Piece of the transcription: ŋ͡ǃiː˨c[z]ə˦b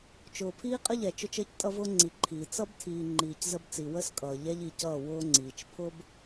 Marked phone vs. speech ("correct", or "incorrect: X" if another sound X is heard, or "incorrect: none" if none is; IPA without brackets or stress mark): correct